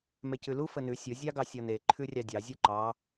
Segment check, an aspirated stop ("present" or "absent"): present